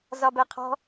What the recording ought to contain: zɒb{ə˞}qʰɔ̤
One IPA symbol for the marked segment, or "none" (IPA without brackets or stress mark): ɜ